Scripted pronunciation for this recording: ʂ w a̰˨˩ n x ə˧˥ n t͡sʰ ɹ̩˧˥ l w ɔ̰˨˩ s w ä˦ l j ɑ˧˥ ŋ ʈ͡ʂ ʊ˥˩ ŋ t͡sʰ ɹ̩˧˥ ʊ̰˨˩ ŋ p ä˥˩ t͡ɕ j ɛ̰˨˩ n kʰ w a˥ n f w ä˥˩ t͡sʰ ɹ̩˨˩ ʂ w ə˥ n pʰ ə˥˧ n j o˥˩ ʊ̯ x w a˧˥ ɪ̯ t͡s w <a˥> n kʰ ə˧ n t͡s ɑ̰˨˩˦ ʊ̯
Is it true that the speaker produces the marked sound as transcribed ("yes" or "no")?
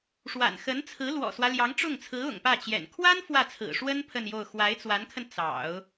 no